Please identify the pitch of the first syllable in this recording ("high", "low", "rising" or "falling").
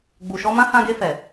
low